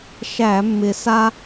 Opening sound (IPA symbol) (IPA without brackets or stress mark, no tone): ʃ